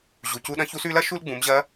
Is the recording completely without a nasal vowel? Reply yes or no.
no